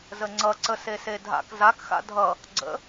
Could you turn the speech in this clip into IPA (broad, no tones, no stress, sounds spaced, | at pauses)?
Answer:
z ə ŋ͡ǀ ʌ ǀ ə s e s e dʱ a̰ k z a k x a̰ dʱ ʌ | ɡ͡ǀ ə̰